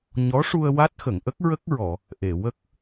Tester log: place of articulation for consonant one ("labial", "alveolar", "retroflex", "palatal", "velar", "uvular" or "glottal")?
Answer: palatal